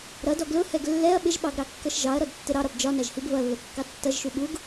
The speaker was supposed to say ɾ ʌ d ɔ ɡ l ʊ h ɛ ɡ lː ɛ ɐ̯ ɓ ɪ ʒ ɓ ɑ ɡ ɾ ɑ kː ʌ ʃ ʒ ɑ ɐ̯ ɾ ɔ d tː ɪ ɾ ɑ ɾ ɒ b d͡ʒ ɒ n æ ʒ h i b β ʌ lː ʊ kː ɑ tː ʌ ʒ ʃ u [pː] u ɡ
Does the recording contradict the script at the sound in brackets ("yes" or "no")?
yes